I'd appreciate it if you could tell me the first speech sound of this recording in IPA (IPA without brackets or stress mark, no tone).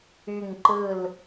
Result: y